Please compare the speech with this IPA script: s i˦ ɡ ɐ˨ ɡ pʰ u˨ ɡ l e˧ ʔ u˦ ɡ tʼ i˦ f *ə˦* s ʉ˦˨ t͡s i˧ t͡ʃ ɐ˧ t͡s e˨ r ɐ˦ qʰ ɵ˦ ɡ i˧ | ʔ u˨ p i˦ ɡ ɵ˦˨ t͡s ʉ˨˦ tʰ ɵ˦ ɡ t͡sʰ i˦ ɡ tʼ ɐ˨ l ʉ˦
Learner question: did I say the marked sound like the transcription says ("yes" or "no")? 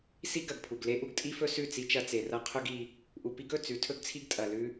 no